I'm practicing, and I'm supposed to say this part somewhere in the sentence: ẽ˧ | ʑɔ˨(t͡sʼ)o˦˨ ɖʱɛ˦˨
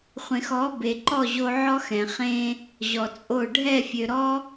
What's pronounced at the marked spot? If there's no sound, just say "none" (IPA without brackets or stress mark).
t͡sʼ